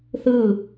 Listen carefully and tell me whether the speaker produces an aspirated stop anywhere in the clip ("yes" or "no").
no